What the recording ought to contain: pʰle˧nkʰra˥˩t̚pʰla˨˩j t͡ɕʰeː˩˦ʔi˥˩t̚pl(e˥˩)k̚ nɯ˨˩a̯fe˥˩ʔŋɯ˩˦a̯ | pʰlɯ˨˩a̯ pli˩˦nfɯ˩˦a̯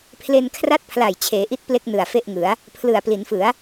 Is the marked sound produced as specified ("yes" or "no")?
yes